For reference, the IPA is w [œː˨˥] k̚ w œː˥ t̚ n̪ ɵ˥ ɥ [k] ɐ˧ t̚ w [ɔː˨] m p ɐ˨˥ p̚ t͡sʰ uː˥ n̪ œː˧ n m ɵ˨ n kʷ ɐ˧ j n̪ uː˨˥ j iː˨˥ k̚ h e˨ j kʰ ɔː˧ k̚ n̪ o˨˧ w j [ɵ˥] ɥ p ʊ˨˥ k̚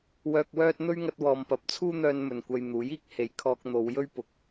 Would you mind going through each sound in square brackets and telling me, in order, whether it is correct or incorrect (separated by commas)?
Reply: incorrect, incorrect, correct, correct